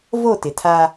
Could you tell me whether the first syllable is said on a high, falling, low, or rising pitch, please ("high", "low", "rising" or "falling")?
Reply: falling